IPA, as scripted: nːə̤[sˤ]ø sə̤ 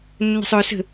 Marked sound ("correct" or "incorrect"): correct